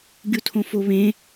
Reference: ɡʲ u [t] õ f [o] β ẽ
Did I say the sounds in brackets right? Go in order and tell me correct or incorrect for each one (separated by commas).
incorrect, correct